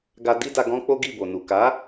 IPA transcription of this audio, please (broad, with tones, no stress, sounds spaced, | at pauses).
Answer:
ɡ a˧ d i˦ d a˧ ɡ ɔ̃˦ k͡p o˦ ɡ i˦˨ b o˨ n u˨ k a˨˦